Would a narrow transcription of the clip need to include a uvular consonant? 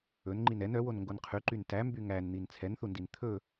yes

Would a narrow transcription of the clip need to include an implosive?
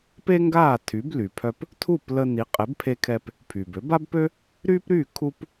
no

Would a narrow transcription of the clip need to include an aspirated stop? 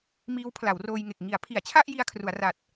yes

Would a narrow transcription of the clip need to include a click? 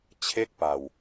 no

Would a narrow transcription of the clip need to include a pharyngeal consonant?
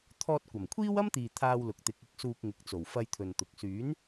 no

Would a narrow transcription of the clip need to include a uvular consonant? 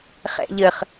yes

